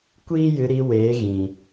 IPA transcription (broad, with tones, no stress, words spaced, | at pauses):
kʷiː˦jɨ˧ɾi˧weː˨˦ ɣĩ˨